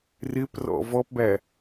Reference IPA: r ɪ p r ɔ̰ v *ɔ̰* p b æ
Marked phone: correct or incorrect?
incorrect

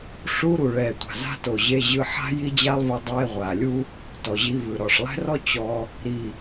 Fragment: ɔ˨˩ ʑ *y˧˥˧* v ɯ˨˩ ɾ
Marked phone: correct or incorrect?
incorrect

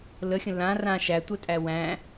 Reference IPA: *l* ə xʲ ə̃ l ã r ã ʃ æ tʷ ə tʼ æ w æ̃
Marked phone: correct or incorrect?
correct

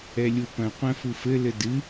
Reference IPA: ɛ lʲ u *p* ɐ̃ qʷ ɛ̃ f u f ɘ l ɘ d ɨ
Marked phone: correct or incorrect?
correct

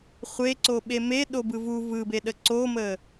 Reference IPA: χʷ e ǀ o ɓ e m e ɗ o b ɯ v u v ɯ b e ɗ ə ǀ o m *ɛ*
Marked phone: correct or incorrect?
incorrect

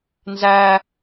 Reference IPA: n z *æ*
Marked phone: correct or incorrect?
correct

